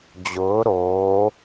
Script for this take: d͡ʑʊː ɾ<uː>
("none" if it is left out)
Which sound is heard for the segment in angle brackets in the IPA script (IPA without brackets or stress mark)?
oː